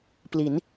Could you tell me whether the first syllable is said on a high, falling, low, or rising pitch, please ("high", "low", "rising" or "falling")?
rising